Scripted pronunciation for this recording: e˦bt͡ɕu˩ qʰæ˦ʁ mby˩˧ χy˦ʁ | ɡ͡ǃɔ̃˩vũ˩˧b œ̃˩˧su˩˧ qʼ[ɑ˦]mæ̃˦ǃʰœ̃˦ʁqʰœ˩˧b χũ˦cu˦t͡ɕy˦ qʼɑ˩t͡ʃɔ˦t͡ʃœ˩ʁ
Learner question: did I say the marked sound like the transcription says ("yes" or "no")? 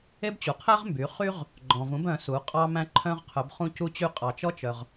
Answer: yes